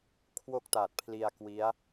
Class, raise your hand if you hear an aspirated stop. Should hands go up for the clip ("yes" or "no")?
yes